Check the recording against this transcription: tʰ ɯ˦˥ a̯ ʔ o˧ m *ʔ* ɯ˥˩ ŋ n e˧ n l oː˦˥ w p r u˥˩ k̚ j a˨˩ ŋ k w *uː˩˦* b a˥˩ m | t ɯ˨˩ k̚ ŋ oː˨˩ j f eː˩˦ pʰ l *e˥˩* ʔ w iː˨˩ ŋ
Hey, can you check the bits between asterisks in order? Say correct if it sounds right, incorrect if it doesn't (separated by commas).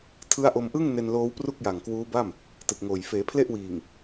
correct, incorrect, correct